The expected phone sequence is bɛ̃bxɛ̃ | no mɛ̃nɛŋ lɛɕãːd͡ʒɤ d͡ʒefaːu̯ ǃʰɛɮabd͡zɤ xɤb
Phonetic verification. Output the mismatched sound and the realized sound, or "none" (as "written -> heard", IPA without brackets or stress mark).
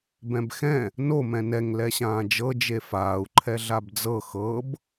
none